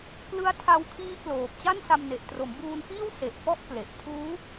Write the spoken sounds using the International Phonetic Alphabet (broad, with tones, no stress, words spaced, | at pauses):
klɯ˦˥a̯ tʰa˧wkʰiː˦˥kloː˨˩p̚ t͡ɕa˥˩nsa˧mne˨˩ʔ tro˩˦mbuː˧nfiː˥˩w se˨˩ʔ fɔ˥˩ʔkle˨˩ʔ pʰuː˦˥